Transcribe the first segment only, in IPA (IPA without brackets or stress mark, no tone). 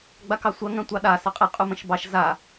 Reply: ɡ͡b